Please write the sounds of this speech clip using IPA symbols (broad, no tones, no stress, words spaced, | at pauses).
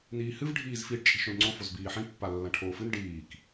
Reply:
niːhɨv ɖʱiːzfiɖ t͡ʃʼi̤ʃõɖŋ͡ǀõ fozbiːħĩ pːalːãʈʰoːfɨn ɖiːk